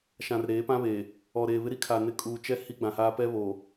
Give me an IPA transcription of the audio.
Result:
ʃã˨rɾeː˨˦pã˦βeː˨ | ɔ˨ɾeː˨ βɪ˦ɾi˦kʰa˨ nɪ˨ kʼuː˨t͡ʃɛ˦ hi˦ɡ͡bã˨haː˦ pɛ˦βo˨

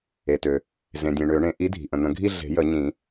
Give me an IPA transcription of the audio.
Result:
e˩tø˩ | zẽ˩dʲẽ˩ ɳø˨˩˦ɳẽ˨˥ ʔi˨˥dʱi̤˩ʔə̃˩ n̪ə̃˨˩˦ɡʱi˥˧ ɮe̤˨˩˦jə˨˩˦ ɲĩ˨˩˦

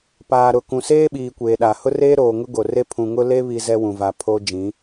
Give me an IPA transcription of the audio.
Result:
paː˨ɾʊ˨ kũ˨seː˦ɓiː˨ kʷeː˨ɗa˨ hʊ˦reː˦ɾoː˨ ŋʊ˦ɡo˨re˦ pʰũ˨ŋʊ˦le˦ βi˦zɛ˦ wũ˨va˨ pʰo˦ d͡ʒĩ˨˦

